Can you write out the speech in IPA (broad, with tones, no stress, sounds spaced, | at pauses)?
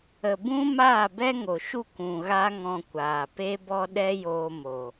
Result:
ə˨ b ũ˦ m aː˦˨ b ɛ˦ ŋ o˨ ʃ u˦˨ k ũ˨ ɣ a˦ ŋ ɔ̃˧ kʷ aː˨ p e˦ b ɔ˦ ɗ ɛ˦ j oː˧ m o˨